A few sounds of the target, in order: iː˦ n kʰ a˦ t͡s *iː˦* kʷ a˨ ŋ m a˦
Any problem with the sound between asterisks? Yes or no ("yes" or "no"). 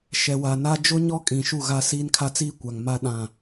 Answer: no